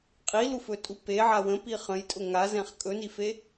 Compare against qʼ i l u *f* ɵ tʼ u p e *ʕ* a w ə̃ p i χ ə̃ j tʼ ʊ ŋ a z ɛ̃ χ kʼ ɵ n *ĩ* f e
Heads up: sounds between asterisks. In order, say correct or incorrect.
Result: correct, correct, incorrect

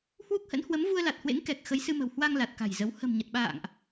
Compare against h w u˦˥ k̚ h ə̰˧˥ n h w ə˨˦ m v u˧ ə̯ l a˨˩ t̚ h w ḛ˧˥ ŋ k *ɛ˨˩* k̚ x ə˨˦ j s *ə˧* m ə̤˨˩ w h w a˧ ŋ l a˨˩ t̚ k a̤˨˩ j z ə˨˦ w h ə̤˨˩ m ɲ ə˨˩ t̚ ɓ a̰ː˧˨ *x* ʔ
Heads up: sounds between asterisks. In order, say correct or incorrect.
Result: correct, incorrect, incorrect

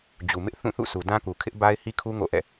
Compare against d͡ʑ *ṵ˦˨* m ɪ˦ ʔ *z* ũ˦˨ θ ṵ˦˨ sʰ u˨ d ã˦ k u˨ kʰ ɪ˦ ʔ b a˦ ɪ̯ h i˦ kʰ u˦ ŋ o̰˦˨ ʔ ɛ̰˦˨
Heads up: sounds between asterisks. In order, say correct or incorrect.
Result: incorrect, incorrect

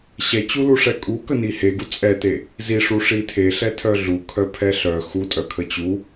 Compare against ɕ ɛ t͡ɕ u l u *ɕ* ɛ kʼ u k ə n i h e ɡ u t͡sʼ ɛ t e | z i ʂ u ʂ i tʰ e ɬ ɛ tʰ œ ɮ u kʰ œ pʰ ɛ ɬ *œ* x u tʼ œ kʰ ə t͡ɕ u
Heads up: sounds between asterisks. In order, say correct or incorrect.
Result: incorrect, correct

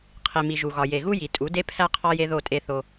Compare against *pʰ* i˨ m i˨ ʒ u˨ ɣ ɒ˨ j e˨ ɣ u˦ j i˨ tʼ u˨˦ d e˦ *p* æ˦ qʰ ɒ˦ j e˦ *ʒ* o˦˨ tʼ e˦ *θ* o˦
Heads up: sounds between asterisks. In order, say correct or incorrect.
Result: incorrect, incorrect, incorrect, correct

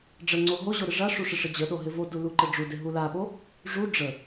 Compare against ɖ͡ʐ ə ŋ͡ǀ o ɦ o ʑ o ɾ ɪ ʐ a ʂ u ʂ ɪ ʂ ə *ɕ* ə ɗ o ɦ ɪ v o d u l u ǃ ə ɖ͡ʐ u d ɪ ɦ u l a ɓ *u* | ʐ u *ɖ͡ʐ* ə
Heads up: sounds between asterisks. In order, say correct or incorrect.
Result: incorrect, incorrect, correct

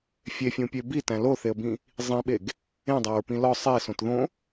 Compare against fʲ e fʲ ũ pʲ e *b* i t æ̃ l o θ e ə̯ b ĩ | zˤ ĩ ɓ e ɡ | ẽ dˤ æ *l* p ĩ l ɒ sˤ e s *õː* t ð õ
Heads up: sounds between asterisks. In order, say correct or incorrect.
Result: correct, incorrect, incorrect

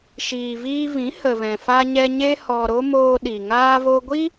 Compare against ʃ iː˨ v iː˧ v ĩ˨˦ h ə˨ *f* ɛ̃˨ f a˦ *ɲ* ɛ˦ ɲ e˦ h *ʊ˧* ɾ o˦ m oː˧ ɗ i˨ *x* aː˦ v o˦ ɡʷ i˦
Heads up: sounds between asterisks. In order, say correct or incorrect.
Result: incorrect, correct, incorrect, incorrect

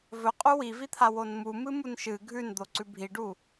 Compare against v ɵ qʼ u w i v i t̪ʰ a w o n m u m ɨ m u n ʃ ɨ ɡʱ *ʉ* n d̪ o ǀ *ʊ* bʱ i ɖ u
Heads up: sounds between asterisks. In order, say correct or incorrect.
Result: correct, incorrect

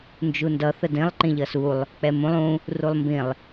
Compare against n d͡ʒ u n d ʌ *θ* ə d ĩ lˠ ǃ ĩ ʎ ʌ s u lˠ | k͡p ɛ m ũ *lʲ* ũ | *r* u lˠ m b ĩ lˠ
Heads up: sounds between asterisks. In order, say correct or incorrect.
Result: correct, incorrect, correct

